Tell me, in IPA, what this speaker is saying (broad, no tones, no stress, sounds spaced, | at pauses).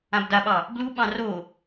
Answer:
ã b d a ɓ ɑ | b l u ɓ ɑ̃ r o